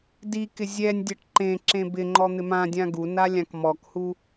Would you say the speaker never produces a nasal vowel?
no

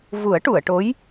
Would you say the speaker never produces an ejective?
yes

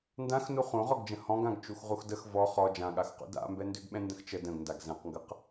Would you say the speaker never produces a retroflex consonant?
yes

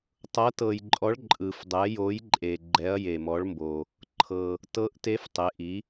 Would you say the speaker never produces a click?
no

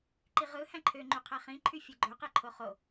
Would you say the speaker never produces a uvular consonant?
no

